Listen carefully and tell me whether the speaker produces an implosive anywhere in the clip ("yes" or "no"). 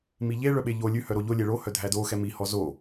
yes